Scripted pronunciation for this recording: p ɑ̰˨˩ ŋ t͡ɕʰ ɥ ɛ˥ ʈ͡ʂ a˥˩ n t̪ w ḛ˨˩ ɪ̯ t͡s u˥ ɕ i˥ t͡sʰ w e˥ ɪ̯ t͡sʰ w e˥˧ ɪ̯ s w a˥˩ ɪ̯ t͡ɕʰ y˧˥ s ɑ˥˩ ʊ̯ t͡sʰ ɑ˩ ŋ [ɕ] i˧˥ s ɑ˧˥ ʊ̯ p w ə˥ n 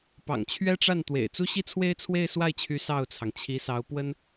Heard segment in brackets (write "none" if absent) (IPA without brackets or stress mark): t͡ɕʰ